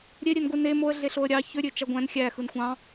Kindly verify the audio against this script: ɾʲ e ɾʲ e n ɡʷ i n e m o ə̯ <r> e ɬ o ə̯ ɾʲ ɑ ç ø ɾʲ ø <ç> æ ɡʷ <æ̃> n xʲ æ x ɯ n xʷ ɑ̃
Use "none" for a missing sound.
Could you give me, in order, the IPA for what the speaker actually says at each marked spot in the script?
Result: ɮ, t͡ʃ, æ̃

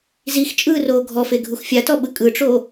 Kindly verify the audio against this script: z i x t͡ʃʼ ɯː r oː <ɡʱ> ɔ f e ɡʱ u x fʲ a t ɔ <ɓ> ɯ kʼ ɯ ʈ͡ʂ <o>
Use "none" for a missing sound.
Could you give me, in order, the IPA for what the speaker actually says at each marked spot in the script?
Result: ɡʱ, ɓ, o

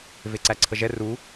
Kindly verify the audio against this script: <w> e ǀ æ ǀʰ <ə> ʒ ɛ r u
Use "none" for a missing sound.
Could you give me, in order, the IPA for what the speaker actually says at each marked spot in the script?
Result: v, ə

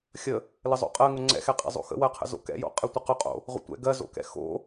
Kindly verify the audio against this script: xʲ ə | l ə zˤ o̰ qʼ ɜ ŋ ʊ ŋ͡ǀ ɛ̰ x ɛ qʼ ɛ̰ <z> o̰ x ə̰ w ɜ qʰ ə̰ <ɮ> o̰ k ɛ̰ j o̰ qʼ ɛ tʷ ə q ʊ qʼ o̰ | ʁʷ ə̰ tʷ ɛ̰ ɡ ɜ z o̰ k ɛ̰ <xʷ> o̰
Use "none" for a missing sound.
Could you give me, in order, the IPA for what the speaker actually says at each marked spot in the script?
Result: zˤ, z, x

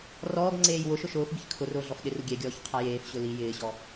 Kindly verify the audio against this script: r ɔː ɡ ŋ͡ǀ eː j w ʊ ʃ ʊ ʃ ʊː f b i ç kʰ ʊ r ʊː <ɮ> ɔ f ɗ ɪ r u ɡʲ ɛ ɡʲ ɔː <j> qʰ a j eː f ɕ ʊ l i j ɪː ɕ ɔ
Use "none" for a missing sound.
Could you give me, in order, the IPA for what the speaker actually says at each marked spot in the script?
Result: ɮ, ç

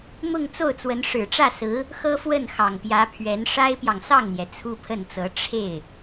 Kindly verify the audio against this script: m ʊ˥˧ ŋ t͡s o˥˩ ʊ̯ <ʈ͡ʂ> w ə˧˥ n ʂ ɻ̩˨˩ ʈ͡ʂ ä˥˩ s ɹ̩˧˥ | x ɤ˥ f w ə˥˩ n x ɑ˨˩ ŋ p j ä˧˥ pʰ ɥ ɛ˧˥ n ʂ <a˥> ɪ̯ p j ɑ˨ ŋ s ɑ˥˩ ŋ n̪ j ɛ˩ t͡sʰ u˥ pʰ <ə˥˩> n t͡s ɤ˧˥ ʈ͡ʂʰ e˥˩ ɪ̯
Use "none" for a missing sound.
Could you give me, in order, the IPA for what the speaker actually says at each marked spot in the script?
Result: t͡s, a˥, ə˥˩

